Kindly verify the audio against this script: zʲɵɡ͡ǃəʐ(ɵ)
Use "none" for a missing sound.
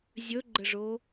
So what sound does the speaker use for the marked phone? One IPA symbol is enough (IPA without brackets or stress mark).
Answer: o